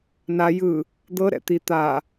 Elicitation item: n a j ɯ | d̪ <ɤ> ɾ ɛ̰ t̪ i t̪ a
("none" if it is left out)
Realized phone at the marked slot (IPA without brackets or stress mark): ɤ